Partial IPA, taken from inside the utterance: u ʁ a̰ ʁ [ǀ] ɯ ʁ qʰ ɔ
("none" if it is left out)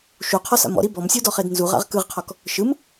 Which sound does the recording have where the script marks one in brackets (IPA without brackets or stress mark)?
k